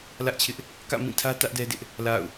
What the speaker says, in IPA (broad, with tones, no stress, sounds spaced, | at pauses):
l ä˦ ʔ t͡ɕʰ ɪ˦ ʔ | k ä̰˦˨ m ĩ˦˨ tʰ ä˦ t ä˦ ʔ d ɛ˦ d ɪ˦ ʔ | l a̰˦˨ ʊ̯